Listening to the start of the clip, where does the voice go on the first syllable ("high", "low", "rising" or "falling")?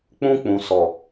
high